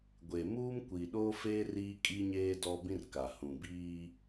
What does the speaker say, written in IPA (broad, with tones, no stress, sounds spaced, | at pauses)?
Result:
ɡʷ e˨ m uː˦ m kʷ i˨ ɗ oː˦ f eː˦ r iː˦ kʼ i˦ ɲ eː˦ d ɔ˦ b ĩ˦ r k a˨ h ũ˨ b iː˦